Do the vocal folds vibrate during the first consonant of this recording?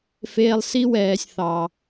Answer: no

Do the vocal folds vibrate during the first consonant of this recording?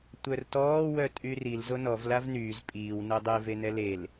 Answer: no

